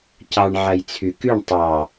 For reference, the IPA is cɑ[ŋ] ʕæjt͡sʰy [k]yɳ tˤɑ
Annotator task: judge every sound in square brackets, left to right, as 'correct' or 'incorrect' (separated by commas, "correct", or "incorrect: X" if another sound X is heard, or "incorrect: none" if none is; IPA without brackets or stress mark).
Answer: incorrect: ɳ, correct